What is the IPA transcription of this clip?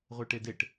ʁʷ e ʈ e d e ʈ

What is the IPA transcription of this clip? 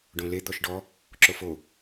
ɖ õ l e d̪ ɔ ʃ ɖ ɔ | ǁ o f o

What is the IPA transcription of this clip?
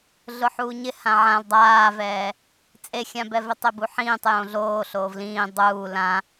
ɮ ʊ ħ uː ɲ ɪ h ã ʕ ã l dˤ aː v ɛː | t͡sʼ e xʲ ã b ɛ v ɪ tˤ e b u ħ ĩː tˤ j õ ɮ oː ɬ oː v l ĩː dˤ uː l ã

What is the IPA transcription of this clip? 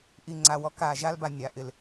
ʔ i˨ ŋ͡ǀ a˨ w ɔ˦ k a˨ ʒ a˦ l b a˨ nʲ a˨ ʔ ɪ˨ l

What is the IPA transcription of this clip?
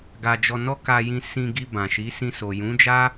ɡ a˧ d͡ʒ ɔ˧ n ɔ˦ k a˧ j ĩ˧ s ĩ˧ ɡ i˧ b ã˨ ʃ i˨˦ s ĩ˧ s o˨ j ũ˨˦ d͡ʒ a˦

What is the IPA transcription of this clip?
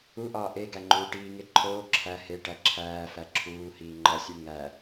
u ʔ ɒː ʔ e ɡ æ ŋ͡ǃ uː ʈ iː ŋ e ǃʰ oː ǁʰ æ h e ʈ æ ǁʰ æː f æ ǁʰ uː h iː ŋ͡ǃ ɒ sʲ u ŋ æ

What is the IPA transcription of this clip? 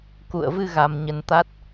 k ṵ˧˨ ə̯ v ɨ˧ ɣ a˧ m ɲ ə˧ n t̪ a˦˥ t̚

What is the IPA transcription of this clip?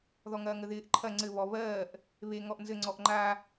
ð ɔ ŋ ɐː ŋ ə ð ɪː ʔ ǃʰ ɐ ŋ͡ǀ ɘ β ɔ β ɜː ʔ | β e ŋ ɔ ʔ n z ɘ ŋ͡ǀ ɔ ʔ ŋ͡ǃ a

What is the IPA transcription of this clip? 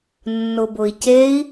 nː ʊ b ʊ i̯ c e i̯

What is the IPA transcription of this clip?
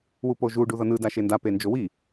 w u p o ʒ u ɖ u ð ʌ n ɯ d a ʃ e n d a p e n d͡ʒ o w i

